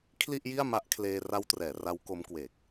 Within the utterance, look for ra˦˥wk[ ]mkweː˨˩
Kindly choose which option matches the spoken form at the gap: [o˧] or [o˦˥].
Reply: o˦˥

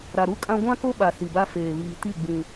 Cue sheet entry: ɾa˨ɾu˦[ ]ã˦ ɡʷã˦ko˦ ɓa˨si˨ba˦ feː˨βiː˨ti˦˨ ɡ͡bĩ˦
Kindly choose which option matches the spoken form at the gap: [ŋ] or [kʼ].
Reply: kʼ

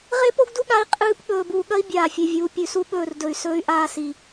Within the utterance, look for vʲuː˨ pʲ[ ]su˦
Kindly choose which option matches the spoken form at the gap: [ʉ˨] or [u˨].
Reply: ʉ˨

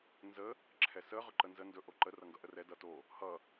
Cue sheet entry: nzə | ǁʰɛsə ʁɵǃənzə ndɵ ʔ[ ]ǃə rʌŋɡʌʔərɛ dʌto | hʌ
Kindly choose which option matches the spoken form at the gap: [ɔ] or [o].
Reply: o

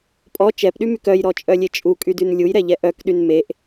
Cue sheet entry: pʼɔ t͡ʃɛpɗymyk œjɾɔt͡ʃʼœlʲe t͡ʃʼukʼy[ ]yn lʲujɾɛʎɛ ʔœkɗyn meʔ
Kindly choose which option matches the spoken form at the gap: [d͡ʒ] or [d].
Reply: d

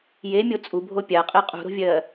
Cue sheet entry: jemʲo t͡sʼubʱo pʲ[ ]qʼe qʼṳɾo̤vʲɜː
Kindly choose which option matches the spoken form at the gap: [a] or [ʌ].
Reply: a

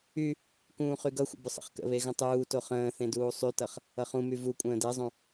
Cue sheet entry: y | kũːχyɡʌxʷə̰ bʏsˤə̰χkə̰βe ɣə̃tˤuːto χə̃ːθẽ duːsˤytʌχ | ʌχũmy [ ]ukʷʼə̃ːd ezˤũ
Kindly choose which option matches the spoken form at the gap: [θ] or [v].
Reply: v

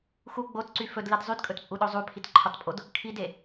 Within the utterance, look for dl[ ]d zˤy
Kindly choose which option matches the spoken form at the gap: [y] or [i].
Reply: i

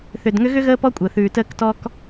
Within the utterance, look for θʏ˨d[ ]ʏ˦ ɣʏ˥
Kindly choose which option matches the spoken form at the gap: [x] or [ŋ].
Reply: ŋ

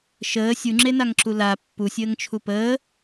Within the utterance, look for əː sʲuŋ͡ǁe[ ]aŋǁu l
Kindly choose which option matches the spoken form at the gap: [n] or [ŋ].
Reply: n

